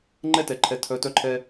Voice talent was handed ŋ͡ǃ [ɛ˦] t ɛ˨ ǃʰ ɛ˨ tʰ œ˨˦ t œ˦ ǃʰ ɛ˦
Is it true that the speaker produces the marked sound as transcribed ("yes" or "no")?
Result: yes